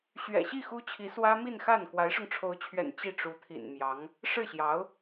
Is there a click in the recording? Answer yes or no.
no